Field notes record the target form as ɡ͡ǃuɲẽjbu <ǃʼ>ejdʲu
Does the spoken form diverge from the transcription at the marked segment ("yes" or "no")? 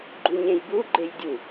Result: yes